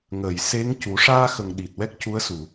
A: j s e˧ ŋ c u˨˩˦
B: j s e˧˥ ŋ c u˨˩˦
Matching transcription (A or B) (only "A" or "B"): B